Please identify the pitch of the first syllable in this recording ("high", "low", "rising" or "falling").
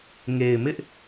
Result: low